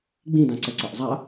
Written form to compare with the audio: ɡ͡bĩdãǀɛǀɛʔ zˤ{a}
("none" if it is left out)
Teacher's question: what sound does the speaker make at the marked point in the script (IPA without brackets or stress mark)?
a